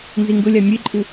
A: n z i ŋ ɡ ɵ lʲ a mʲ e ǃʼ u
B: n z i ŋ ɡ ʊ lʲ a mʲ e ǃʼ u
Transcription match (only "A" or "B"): B